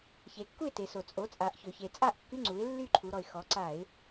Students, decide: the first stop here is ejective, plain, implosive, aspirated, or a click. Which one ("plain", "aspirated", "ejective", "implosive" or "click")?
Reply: plain